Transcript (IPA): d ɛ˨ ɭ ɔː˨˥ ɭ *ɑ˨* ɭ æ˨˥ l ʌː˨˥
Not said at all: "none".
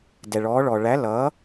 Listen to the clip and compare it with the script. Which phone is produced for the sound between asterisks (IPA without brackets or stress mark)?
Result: ɔ˨